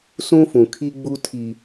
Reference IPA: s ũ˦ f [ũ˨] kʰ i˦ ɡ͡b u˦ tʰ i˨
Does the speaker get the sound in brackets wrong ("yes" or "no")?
no